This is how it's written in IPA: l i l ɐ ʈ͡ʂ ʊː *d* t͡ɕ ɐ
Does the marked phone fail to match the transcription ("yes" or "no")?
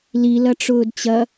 no